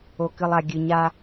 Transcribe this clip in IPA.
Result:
o˨ k ɨ˨ lˠ a˨ ɡʲ ɨ˨ ɲ a˦

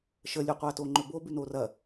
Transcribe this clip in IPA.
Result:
ʃ ə lʲ ʉ qʷ a t o ŋ͡ǃ ɵ b o b ʉ n o r ɐ

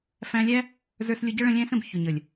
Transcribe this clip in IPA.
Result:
f æ̃˧ lʲ æ˦ | z ə˞˧ s lʲ ʊ˧ ɟ ʌ˦ ɭ ə̃˧ lʲ æ̃˦ s ə̃˨ b ç ʊ˨ ɲ ə˨ lʲ

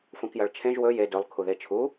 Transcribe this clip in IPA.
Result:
f ũ k j ɐ ɭ t͡ʃʰ ẽ ʒ w ɵ j e d ɵ lˠ kʰ u ð e t͡ʃʰ u

